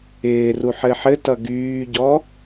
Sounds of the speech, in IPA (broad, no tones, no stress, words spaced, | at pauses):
ɪːru ħɘħɘtʌ ɡyːɟɔ